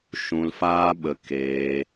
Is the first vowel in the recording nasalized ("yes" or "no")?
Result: yes